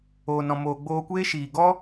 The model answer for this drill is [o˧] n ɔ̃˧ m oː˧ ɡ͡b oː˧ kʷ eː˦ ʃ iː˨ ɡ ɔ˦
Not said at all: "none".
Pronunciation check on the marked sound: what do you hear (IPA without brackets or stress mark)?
oː˧